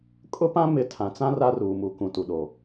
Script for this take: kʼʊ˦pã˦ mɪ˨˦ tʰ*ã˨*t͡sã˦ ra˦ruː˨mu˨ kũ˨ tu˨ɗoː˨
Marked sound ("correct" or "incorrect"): correct